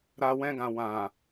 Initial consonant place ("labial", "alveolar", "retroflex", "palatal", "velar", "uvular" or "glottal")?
alveolar